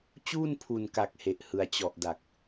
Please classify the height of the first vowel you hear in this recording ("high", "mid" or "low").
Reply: high